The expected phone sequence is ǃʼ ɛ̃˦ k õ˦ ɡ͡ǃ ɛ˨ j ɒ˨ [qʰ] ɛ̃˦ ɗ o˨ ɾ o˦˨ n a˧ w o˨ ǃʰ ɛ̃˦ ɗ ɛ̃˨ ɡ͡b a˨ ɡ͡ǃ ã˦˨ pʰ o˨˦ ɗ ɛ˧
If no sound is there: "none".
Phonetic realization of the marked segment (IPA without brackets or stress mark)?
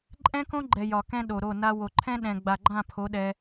k